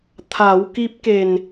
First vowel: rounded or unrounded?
unrounded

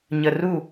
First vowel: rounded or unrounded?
unrounded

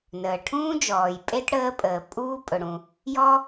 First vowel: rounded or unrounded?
unrounded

